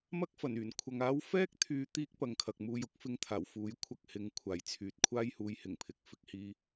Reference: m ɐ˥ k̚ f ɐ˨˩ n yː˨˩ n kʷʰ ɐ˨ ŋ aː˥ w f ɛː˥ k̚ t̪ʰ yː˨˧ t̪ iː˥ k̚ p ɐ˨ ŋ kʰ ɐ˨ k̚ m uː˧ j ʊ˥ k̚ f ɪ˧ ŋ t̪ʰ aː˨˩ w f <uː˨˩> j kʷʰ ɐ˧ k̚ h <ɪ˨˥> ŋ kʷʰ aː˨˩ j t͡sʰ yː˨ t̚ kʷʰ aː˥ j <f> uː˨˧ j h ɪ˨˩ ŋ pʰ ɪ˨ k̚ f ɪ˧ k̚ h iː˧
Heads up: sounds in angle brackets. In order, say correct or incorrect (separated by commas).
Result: incorrect, correct, incorrect